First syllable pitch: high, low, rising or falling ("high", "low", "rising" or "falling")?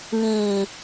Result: low